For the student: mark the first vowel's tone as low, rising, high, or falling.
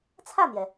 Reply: falling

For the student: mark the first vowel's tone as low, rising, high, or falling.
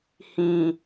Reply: low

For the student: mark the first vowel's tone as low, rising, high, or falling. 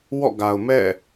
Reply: falling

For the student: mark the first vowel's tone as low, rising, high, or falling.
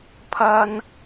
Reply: high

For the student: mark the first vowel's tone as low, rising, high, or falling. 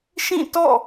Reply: falling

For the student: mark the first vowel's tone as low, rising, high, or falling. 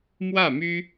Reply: falling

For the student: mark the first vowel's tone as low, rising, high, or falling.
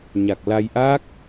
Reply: low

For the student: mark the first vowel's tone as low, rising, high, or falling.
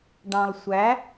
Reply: low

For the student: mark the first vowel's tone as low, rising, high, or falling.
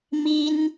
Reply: high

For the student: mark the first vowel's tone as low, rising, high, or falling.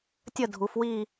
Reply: falling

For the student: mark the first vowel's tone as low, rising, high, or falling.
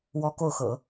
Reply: high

